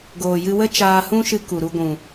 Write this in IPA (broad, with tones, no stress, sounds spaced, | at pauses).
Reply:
ɡ oː˨ j ɨ˧ w ə˦ t͡ʃ aː˧ h ũ˦ ʃ ɨ˧ k u˨ ɾ u˧ ɡʷ ũ˨